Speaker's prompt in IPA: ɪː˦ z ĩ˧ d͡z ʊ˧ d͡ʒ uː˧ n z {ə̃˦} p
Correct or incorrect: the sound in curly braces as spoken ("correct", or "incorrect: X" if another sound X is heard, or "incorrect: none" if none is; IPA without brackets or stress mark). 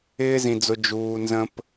correct